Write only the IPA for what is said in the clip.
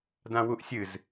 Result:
d ã w u ʔ sʲ ɨ z

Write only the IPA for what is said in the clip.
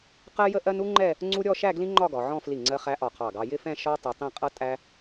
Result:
q ɜ˥ j ə˥ ʔ ɜ˥ n u˥ ŋ͡ǃ ɛ˥˧ | ŋ͡ǀ u˥ ɾʲ ɔ˥˧ ʃ æ˥˧ ɡ l ĩ˥ ŋ͡ǃ ɒ˥˧ ɡ ɒ˩˧ ʕ ɔ̃˥˧ f l i˧˩ ŋ͡ǀ ɜ˧ χ æ˧ ʔ ɒ˧˩ qʰ ɑ˧˩ ɡ ɑ˧ j ɪ˥˧ f ɛ̃˥˧ ʃ ɒ˥ tˤ i˧ tˤ ĩ˥˧ qʼ ʌ˥ tʼ æ˥

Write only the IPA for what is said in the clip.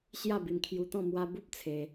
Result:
ɕ j a˥˧ b i˧ m kʰ j u˧ t̪ ɔ̃˥˧ m w a˧ b u˦ p̚ t͡sʰ e˧

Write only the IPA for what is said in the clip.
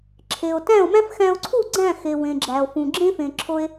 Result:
ǁʰ e˩ o̯ t æ̃˥˩ o̯ m æ̃˥ f x æ̃˧ o̯ ǀʰ u˥˩ ɡ͡ǀ æ̃˥˩ x e˩ w ẽ˩ ɡ͡ǁ æ˩ o̯ f ũ˩ ɡ͡ǁ ẽ˥ f ẽ˩ ǁʰ o˧ e̯

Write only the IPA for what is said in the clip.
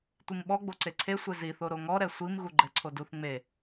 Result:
tʷ i m ɓ ɔ ɡ͡b o ǀ e ǀʰ e sʷ e z i θ o ɾ o ŋ ɔ ɾ ɛ sʷ i m ɣ u ɡ͡ǃ ɛ ǀʰ o d u θ ŋ͡m e

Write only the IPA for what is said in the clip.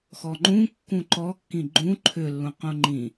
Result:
x ɔ ŋ͡ǃ ũ kː ũ ǃ ɔ kː ĩ ɡ͡ǃ ũ ǃʰ ʏ lː ũ q ũ ŋ͡ǃ ĩ

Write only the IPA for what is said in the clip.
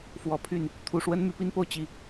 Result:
f w ɔ˨˩ pʰ y˥˩ n | t̪ʰ u˨˩ ʂ w ə˥ n m y˧˥ p i˥ n p o˥˧ ʊ̯ t͡ɕ i˥˩

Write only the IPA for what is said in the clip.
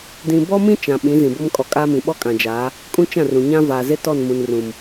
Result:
d ĩ˨ b ɔ˦ m ĩ˦ t͡ʃ ã˨ ɓ ĩ˨˦ z ĩ˨ b o˦ m kʼ ɔ˨ kʼ aː˦ m ĩ˨ ɓ ɔ˦ kʼ ã˨ d͡ʒ aː˨˦ | kʼ ũ˦ t͡ʃ ã˦˨ r ũ˨ ɲ ã˦ v aː˨ z e˦ t ɔ˦˨ n m ũ˨ n r ũ˨ m

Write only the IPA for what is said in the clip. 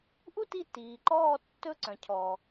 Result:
ʔ u˦ t i˧ t iː˨ ǃ ɔː˦˨ tː ɵ˦˨ ǀ œ̃˨ cʰ ɔ˨

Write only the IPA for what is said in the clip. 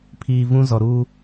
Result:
pʰ iː˨ v ũ˦ z ɔ˨ ɾ uː˦

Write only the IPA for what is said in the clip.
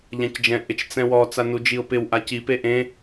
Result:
ʎ ã c d͡ʒ ɛ̃ ʔ ɪ t͡ʃ t͡s ɛ̃ w ɔ t͡s a n u d͡ʒ i ʊ̯ p ɪ w ʔ a c i p e ʔ ẽ

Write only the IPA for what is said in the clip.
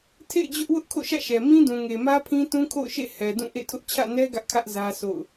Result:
tʰ ḛ˦˨ ɪ̯ d͡ʑ ʊ˦ ʔ w ʊ˦ ʔ kʰ o̰˦˨ ʃ ä̰˦˨ ʃ ɛ˨ m ĩ˦ d ũ˨ ŋ e˨ m ä˦ pʰ ĩ˦ t ũ˦ kʰ o̰˦˨ ʊ̯ ʃ ḛ˦˨ h ɛ˨ d ũ˦˨ ʔ ḛ˦˨ tʰ ʊ˦ ʔ t͡ɕʰ ä̰˦˨ n ɛ˦ ɡ ä˦ ʔ kʰ ä˦ ʔ z ä˦ sʰ o̰˦˨ ʊ̯

